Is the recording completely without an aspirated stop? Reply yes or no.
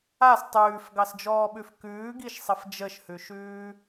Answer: yes